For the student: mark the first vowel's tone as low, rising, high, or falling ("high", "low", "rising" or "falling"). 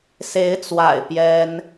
rising